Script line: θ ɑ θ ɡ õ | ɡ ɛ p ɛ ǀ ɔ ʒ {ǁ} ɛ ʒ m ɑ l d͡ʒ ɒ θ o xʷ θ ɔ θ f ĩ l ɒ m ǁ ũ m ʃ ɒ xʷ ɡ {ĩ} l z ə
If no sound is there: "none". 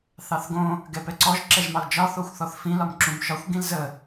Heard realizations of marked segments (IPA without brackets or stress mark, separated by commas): ǁ, ĩ